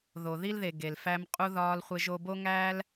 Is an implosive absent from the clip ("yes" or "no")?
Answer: yes